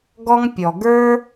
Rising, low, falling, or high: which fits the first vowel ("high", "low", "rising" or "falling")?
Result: high